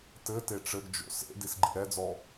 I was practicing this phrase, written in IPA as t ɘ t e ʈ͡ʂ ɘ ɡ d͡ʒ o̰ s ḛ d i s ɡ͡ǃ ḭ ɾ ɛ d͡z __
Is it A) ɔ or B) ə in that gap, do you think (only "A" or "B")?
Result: A